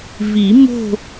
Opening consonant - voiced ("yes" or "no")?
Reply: yes